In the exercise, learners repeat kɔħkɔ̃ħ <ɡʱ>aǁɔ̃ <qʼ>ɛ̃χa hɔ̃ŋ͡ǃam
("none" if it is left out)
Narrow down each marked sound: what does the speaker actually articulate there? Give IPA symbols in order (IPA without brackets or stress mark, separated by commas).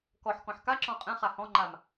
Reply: k, qʼ